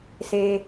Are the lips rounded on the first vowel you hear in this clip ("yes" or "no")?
no